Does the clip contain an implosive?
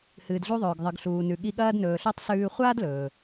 yes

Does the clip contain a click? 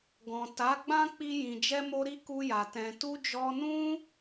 no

